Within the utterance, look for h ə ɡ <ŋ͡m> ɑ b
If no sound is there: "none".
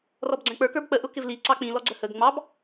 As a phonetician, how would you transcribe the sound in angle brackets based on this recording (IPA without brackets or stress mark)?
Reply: ŋ͡m